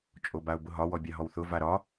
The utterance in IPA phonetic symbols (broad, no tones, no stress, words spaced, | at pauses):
t͡ʃʼobaʊ̯bʊɦɒ wɔbʲaɦɔwθʊ vaɾɒ